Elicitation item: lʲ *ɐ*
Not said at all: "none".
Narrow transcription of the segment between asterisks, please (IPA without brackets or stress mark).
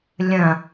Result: ɐ̃